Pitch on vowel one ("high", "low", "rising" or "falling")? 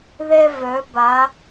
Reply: high